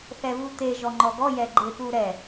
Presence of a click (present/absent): present